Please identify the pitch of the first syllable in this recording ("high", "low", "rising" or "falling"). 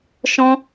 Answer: high